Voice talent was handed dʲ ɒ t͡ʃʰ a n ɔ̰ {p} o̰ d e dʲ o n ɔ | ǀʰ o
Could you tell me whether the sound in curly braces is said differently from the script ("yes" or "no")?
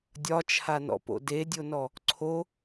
no